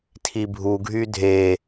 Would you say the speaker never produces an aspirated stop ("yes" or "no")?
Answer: no